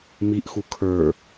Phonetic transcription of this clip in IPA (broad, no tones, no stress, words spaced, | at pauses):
miʔxu kʰə˞